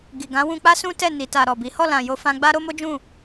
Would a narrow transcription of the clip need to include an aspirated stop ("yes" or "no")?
no